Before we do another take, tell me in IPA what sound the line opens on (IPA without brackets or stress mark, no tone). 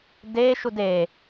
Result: d